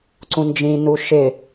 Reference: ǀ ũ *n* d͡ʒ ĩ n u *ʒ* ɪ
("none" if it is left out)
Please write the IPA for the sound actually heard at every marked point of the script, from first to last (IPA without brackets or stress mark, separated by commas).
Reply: n, ʃ